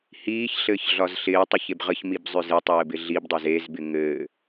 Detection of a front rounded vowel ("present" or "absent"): present